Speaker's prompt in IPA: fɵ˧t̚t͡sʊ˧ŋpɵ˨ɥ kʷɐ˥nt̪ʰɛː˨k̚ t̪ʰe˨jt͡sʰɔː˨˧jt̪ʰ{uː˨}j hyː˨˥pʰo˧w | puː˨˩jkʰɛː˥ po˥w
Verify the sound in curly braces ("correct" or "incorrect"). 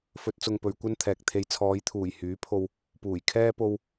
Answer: incorrect